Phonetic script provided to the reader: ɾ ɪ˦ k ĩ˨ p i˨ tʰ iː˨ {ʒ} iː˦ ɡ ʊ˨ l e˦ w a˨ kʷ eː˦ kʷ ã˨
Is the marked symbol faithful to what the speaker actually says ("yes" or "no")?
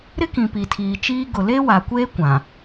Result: no